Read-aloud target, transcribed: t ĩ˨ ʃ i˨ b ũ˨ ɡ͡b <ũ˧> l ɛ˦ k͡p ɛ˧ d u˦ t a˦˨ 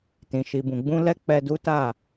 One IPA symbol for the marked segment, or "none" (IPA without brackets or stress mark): ũ˧